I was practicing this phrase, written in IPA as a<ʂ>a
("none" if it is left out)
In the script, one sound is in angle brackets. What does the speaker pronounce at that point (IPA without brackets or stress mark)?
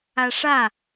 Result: ʂ